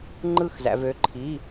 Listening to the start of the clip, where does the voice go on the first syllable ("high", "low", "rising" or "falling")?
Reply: falling